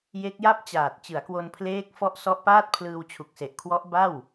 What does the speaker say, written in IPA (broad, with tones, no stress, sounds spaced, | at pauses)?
j e˦˥ k̚ j a˥˩ p̚ t͡ɕ aː˨˩ t̚ t͡ɕ ɯ˩˦ a̯ k w o˧ n pʰ l eː˦˥ k̚ f ɔ˦˥ ʔ s ɔ˦˥ ʔ p aː˥˩ t̚ pʰ l ɯː˧ w t͡ɕʰ u˨˩ k̚ s e˨˩ ʔ kʰ w ɔ˦˥ ʔ b a˥˩ w